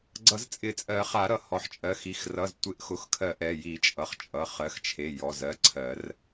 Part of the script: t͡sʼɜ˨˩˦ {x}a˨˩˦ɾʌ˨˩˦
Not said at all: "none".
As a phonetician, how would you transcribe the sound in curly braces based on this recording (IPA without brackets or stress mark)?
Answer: χ